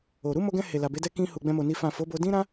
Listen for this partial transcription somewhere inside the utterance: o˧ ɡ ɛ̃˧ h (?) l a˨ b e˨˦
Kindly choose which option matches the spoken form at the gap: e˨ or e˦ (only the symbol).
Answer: e˨